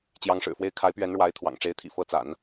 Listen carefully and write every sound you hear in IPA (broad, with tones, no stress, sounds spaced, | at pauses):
t͡ɕ j ɑ˧˥ ŋ ʂ ɻ̩˨˩ f w e˥˩ ɪ̯ kʰ a˧˥ ɪ̯ p ɥ ɛ˧˥ n ɻ w a˧˥ ɪ̯ t̪ʰ w ɑ̰˨˩ ŋ ʈ͡ʂ e˧˥ ɪ̯ t̪ʰ ḭ˨˩ f ɤ˧˥ t͡s a̰˨˩˦ n